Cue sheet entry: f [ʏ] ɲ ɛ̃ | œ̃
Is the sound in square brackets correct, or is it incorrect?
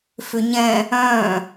correct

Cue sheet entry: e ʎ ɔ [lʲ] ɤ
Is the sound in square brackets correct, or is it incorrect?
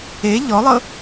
incorrect: lˠ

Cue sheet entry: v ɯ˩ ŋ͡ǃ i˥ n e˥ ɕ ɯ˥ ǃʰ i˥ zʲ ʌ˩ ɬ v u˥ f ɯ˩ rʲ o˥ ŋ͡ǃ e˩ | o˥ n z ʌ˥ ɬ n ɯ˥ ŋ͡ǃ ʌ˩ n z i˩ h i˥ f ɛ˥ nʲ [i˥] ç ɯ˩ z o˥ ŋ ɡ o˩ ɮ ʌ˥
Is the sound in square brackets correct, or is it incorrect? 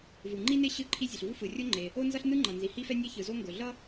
incorrect: e˥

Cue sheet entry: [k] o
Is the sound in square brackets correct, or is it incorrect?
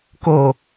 correct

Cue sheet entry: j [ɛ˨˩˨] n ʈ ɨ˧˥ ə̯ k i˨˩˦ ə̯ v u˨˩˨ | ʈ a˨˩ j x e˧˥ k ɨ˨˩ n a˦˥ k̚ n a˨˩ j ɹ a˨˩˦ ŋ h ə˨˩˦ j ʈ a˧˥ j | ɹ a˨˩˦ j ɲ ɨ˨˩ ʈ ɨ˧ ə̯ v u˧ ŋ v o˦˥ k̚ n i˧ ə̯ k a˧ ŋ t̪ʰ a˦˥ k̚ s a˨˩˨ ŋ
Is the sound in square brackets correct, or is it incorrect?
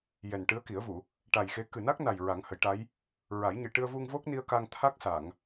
incorrect: ɛ˨˩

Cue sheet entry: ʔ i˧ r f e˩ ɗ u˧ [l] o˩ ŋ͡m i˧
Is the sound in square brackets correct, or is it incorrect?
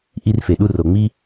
incorrect: r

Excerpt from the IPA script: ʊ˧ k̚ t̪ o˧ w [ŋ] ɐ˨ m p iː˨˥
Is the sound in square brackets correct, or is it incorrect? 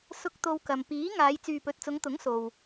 incorrect: k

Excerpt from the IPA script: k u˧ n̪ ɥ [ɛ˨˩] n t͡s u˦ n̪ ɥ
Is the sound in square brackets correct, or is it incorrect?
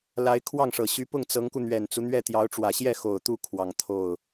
correct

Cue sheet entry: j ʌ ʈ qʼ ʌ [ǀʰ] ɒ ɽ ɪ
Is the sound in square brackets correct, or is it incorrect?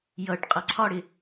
correct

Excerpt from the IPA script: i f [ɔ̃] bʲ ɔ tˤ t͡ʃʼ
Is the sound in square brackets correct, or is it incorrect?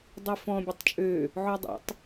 correct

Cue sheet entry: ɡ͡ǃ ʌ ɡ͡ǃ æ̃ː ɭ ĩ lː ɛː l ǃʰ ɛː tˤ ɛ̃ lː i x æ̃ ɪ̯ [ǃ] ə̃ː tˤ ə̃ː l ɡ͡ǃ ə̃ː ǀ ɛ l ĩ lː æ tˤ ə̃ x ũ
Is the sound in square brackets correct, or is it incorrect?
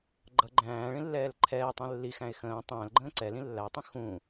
incorrect: x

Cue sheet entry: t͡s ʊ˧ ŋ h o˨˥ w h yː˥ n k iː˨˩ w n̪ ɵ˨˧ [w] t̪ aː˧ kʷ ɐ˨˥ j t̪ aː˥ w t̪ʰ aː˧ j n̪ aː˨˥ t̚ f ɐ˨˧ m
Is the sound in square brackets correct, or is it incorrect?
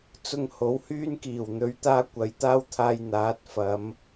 incorrect: ɥ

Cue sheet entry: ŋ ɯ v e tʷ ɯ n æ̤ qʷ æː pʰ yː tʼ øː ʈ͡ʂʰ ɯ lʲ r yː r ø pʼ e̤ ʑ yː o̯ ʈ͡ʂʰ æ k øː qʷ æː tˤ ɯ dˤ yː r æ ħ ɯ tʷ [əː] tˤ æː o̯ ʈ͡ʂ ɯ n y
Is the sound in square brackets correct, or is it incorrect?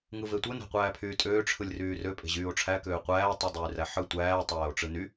incorrect: æː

